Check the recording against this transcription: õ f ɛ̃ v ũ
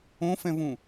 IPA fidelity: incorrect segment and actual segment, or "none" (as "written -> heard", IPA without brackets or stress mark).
none